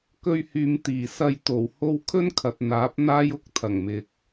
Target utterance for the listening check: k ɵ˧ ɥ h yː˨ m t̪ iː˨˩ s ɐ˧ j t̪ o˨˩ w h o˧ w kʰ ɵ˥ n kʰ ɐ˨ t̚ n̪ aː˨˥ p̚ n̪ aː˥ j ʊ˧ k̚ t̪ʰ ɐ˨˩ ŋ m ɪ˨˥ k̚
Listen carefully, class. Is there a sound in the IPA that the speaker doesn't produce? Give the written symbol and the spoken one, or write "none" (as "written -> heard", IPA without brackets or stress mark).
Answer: ɪ˨˥ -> ɪ˨